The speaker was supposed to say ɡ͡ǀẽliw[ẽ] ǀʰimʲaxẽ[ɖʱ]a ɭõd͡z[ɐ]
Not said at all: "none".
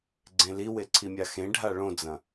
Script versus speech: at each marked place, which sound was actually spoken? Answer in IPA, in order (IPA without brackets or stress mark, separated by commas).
e, ɖʱ, ɐ̃